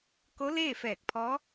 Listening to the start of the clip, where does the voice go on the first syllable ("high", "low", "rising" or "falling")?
rising